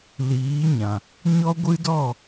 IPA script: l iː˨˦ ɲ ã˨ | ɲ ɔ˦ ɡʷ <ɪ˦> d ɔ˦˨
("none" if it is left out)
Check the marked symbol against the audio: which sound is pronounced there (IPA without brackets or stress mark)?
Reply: ɨ˦